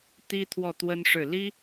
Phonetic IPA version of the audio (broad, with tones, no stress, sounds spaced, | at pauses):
t̪ i˥ t̪ʰ w ɔ˥˩ t̪ w ə˥ n ʂ ɻ̩˥˩ l i˥